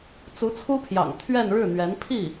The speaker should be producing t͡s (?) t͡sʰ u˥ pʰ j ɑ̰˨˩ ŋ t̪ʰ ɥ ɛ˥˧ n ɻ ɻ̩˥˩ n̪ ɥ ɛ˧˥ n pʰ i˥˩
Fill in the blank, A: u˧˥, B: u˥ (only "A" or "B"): A